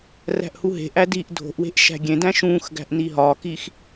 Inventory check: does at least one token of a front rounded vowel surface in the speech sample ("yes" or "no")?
no